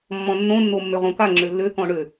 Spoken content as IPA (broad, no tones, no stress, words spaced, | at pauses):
mːɔ̃nːõnːo mːøʁõka ŋ͡ǁølːø kɔ̃ɳø